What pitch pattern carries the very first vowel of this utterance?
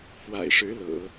low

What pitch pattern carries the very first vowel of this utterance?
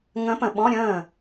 rising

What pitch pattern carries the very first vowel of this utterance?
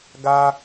high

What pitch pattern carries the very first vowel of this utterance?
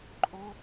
high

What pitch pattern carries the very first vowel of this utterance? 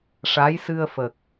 rising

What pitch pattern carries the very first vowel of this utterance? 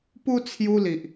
high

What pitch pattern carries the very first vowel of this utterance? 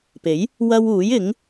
rising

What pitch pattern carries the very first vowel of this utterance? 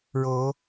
rising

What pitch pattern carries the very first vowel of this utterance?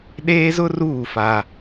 high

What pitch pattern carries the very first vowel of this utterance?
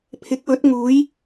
rising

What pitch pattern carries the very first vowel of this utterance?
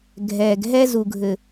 low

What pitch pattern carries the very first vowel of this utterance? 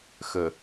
low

